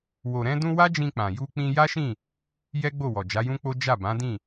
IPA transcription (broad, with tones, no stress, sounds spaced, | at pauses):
w o˨ ɾ ɛ̃˧ d ũ˧ w a˦ d͡ʒ ĩ˧ k͡p ã˨ j u˧ k͡p ĩ˧ j a˦ ʃ ĩ˦˨ | j ɛ˦ ɡ͡b o˦˨ w ɔ˨ d͡ʒ a˨˦ j ũ˦ k͡p o˦ d͡ʒ a˦˨ b ã˨˦ d ĩ˦˨